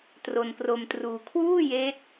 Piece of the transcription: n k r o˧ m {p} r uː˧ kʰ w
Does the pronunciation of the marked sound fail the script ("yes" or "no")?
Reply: yes